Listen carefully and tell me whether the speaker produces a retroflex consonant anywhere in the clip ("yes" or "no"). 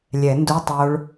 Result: yes